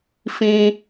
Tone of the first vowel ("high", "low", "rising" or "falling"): high